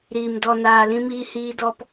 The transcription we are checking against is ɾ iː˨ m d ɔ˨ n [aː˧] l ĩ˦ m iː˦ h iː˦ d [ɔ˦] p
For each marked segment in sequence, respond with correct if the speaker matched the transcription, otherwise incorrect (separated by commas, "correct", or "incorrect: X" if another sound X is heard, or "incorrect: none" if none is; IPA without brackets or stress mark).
incorrect: aː˨, correct